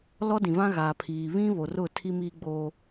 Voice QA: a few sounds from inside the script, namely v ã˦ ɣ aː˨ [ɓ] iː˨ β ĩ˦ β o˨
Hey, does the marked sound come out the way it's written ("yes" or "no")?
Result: no